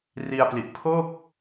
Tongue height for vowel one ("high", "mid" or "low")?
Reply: high